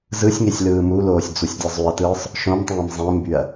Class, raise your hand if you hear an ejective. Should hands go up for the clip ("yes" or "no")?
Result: no